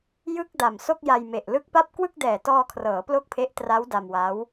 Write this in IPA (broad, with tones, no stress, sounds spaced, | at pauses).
j ɯ˥˩ k̚ d a˨˩ m s o˥˩ k̚ j a˧ j m e˨˩ ʔ l ɯ˦˥ k̚ p a˥˩ p̚ k w ɯ˥˩ k̚ d ɛː˨˩ t ɔː˧ kʰ r ɤː˩˦ p l o˥˩ k̚ pʰ e˦˥ ʔ t r a˦˥ w d a˧ m w a˦˥ w